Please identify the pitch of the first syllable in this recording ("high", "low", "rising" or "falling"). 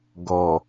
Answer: low